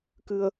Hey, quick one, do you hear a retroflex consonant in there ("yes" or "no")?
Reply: no